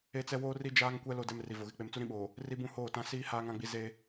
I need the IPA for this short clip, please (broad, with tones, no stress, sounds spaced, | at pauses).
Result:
e˦ t͡s ɛ˦ w oː˦ r i˦ d͡ʒ aː˦ ŋ kʷ ɛ˦ l o˦ d ɛ˦ m r i˨ v o˨ ɣ ɪ˦˨ k͡p e˦ m t͡s u˦ ɾ ĩ˦ ɓ oː˨ | r i˦ b ũ˦ h oː˦˨ t ã˦ s iː˦ h aː˦ ŋ ã˦ ɡ͡b i˦ z e˦